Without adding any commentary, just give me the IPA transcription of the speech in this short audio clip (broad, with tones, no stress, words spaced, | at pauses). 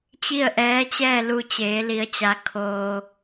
t͡ɕi˥˨ə̯ʔɛː˧˥t͡ɕɛː˥˨ lu˧t͡ɕeː˩˧li˩˧ə̯t͡ɕa˩˧ kʰoː˩